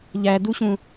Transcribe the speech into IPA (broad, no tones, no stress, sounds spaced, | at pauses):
ʎ æ d u ɕ ũ